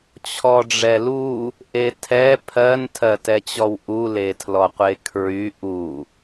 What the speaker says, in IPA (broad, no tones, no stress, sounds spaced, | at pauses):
t͡ɕʰ ɔ ɖ͡ʐ ɛ l u | ʔ e tʰ ɛ pʰ ɜ n tʰ ɜ t ɛ t͡ɕ ɔ w ʔ u l e tʰ l ɔ qʷ e kʰ ɹ y ʔ u